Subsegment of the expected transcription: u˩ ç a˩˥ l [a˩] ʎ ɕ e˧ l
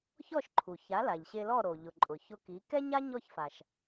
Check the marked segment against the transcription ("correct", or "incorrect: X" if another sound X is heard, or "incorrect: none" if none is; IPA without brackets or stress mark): correct